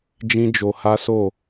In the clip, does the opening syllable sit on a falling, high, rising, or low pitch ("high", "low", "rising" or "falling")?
high